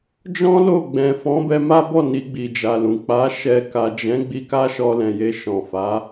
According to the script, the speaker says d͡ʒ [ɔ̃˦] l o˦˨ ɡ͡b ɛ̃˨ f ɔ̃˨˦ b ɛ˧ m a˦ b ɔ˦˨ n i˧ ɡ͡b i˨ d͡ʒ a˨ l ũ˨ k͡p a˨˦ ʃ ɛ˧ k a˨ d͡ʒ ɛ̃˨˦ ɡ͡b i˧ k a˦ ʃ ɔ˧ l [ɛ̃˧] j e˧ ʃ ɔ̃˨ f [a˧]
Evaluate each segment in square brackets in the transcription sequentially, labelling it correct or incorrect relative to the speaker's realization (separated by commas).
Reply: correct, incorrect, incorrect